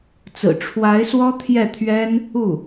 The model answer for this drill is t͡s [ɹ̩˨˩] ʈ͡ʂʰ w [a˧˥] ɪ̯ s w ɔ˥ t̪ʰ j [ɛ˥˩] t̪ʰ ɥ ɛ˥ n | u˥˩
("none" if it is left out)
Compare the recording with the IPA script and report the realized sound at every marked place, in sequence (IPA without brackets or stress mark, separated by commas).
ɹ̩˨˩, a˧˥, ɛ˥˩